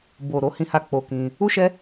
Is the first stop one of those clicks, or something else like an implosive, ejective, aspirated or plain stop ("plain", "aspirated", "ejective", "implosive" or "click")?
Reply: plain